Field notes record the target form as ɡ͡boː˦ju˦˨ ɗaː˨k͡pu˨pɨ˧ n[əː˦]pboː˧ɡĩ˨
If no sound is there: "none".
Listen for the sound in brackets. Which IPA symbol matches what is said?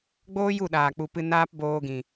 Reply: aː˦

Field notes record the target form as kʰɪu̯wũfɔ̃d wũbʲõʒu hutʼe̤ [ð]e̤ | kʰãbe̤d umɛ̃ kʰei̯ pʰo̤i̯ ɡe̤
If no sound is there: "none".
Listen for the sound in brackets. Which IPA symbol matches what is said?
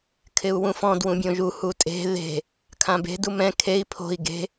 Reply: ð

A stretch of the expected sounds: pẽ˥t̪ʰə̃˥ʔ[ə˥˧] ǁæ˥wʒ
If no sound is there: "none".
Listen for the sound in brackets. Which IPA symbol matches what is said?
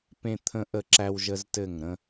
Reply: ə˥˧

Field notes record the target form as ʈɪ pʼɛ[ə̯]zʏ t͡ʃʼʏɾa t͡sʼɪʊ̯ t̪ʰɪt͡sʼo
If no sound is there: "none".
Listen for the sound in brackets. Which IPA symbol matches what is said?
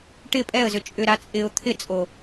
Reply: ə̯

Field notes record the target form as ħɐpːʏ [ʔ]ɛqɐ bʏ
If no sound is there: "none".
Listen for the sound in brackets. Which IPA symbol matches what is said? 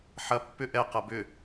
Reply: ʔ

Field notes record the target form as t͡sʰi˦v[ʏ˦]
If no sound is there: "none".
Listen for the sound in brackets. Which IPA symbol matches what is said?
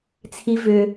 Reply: ʏ˦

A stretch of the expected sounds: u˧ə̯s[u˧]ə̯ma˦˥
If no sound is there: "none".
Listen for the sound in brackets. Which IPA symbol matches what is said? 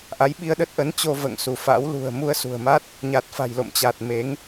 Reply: ṳ˨˩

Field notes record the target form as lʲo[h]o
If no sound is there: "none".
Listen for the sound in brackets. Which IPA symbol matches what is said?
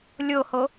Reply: h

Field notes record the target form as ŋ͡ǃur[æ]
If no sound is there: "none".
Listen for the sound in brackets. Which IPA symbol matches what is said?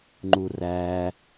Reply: æ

